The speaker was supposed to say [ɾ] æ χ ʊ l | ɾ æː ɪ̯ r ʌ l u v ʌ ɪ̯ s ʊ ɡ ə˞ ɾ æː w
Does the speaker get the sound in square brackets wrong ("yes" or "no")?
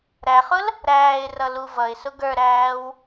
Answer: no